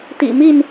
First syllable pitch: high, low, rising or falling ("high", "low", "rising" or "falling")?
low